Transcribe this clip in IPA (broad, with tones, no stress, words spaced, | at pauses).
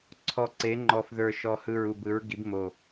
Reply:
ǀʰɔ˨˩ǀe˩˧ŋ͡ǃɔ˨˩fðə˞˨˩ ʃɔ˨˩hɯ˨˩ɹu˨˩b ɯ˩˧ɹɡi˩˧bmo˨˩